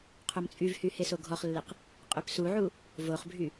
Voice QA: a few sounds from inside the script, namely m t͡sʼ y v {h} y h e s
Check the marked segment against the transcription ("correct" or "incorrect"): correct